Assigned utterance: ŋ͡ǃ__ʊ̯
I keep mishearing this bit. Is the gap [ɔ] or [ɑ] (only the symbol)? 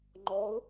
ɔ